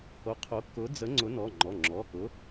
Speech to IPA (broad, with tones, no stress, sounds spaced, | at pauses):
h o˨˥ qʰ o˨˥ k ʊ˨˥ d͡z ə˨˥ ŋ͡ǀ ʊ˨˥ n ɔ˩˧˩ ŋ͡ǃ ɔ˩˧˩ ŋ͡ǁ ɔ˩˧˩ k ʊ˨˥